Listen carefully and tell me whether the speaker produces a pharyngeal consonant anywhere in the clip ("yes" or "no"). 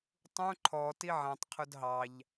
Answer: yes